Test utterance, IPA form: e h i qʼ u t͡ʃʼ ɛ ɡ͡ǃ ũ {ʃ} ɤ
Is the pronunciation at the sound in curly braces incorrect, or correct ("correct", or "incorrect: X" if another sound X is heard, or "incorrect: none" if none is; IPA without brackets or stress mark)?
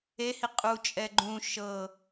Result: correct